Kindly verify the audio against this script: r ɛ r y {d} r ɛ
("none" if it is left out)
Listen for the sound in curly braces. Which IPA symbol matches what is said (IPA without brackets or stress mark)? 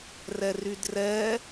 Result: d